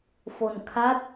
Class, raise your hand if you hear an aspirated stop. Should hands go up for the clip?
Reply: yes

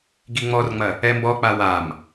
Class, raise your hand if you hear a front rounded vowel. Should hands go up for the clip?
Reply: no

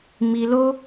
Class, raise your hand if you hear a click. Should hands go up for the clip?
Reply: no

